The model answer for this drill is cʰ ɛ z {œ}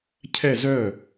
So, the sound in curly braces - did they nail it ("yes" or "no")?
yes